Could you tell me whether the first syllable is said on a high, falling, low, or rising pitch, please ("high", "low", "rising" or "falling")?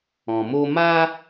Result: low